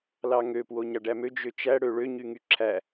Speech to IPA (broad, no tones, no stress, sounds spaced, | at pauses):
l ɑ ŋ ø p w o ɲ ɑ ɖ æ m ø d͡ʒ ø t͡ʃ æ ɽ ø ɭ ø ɲ y ŋ y ǁʰ æ